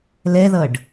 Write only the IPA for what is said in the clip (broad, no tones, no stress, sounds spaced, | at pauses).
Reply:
l ɛ ð ʌ ɖ